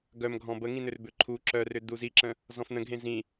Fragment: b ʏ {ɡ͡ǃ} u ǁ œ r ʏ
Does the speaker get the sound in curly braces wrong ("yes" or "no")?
yes